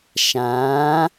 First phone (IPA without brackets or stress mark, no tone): ʃ